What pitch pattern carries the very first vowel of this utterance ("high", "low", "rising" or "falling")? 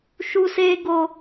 high